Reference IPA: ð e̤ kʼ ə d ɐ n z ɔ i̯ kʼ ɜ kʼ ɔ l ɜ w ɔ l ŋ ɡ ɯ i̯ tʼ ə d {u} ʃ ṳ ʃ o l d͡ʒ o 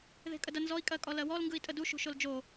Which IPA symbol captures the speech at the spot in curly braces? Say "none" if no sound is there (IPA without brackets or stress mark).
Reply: u